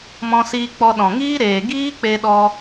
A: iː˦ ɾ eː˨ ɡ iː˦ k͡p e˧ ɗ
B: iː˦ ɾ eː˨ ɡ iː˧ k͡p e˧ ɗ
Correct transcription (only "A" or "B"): A